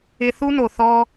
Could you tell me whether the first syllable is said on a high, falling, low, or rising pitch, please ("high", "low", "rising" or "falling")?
high